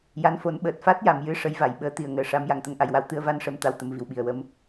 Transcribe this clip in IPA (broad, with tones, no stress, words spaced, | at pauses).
ja˧˥nfo˨˩˦n ɓəː˨˩t̚fa˦˥t̚ja˨˩˨mjɨ˧ ʂə˧˥jva˨˩˨j ɓəː˧˥t̪i˨˩˨ə̯ ŋəː˨˩ʂa˧˥m ja˨˩˨ŋt̪ə˧˥ŋʔa˨˩jwa˧w t̪ɨ˧ə̯va˧nʂə˨˩˦m t̪a˧˥wt̪ə˨˩˦mvi˨˩wɓi˨˩ə̯ wə˧m